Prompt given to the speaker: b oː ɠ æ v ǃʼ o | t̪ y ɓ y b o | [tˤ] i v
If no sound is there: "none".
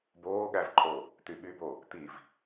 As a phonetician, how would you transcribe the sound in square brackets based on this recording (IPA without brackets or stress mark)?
t̪